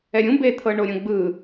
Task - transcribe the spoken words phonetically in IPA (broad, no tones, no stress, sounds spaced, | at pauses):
ɛ ɾʲ ũ b e t̪ʰ ɤ ɳ o ɾʲ õ ɡ͡b ɯ